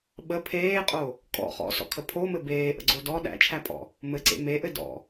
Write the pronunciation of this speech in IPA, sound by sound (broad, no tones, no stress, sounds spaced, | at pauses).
ɓ ə pʰ eː qʼ o | kʼ ɔ̰ χ ɔ̰ s ɔ̰ kʰ ə pʰ o m ɘ b eː ʔ ə̰ ɡ͡ǀ o d ɔ ɗ æ̰ t͡ʃʰ æ pʼ ɔ̰ | m ɘ ǀ ḛ m e ʔ ɘ d ɔ̰